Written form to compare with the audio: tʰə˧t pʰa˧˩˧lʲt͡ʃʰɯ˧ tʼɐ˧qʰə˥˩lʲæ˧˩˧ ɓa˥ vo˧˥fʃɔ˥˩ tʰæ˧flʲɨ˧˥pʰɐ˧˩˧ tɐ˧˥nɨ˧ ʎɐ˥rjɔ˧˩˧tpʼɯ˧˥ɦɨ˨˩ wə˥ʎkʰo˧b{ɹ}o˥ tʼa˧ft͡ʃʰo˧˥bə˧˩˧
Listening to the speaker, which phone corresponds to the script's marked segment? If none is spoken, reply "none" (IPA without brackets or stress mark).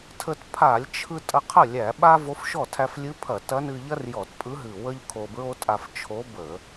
ɹ